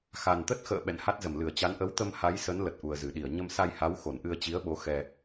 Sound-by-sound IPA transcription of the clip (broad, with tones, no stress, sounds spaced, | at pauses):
x a˨˩ n t̪ ə˦˥ t̚ x ə̰ː˧˨ ɓ ɛ̰˧˨ n h a˦˥ t̚ z ə˧˩ m l ɨ˧˩ ə̯ t͡ɕ a˨˦ n ʔ ə˨˦ w t̪ ə˧ m h a˨˦ j s ə˨˦ n l ə˨˩ t̚ ʔ u˨˩ ə̯ z ɨ˧˩ ɗ i˧˩ ə̯ ɲ ə˧ m s a˧ j h a˨˦ w x o˧˩ n ʔ ɨ˧ ə̯ t͡ɕ i˨˦ ə̯ ɓ o˨˦ x ɛ˧